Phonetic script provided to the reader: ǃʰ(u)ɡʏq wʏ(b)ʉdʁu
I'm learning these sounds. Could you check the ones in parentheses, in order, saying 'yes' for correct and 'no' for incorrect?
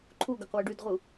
yes, no

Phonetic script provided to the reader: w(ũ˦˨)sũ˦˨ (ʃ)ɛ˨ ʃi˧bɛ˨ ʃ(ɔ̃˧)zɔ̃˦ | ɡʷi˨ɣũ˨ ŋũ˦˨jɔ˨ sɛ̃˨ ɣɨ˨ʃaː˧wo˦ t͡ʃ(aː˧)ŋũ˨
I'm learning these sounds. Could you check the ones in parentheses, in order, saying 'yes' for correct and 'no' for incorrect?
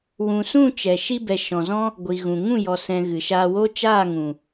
no, no, no, no

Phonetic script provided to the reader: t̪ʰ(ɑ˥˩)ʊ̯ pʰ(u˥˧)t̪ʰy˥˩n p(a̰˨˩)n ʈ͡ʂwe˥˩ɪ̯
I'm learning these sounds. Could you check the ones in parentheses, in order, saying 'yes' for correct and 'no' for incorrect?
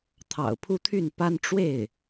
no, yes, no

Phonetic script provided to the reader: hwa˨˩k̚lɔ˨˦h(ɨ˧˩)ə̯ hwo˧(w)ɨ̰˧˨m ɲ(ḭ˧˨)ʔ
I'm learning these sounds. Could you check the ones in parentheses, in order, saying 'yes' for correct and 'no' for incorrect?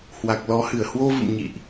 yes, no, yes

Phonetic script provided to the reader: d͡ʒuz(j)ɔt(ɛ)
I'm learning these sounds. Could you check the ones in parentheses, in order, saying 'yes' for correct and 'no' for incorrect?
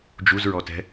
no, no

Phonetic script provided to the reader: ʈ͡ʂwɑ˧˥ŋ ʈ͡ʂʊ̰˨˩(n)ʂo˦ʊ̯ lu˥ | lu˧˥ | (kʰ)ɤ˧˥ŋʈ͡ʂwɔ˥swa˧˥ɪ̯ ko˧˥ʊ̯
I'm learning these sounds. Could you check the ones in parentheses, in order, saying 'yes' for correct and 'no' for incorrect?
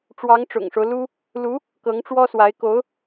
no, no

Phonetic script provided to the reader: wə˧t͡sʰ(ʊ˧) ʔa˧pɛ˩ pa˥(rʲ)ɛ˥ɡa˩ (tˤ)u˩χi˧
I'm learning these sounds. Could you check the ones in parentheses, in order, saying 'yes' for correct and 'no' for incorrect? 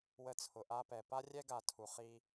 no, yes, no

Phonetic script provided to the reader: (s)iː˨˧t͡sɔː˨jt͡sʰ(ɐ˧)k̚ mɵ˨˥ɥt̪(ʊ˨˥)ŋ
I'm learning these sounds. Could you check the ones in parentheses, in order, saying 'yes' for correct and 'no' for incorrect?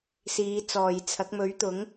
yes, no, yes

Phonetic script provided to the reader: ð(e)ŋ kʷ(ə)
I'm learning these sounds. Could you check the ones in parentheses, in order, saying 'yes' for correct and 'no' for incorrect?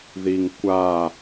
no, no

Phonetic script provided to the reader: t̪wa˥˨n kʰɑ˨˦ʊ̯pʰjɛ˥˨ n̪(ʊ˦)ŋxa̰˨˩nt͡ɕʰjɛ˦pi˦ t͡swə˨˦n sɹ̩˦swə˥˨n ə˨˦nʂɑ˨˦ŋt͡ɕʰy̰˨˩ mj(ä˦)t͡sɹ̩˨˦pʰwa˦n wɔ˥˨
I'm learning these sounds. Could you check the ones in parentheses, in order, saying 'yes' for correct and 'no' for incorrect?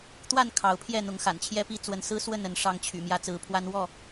no, yes

